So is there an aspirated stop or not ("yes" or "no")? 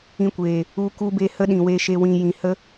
no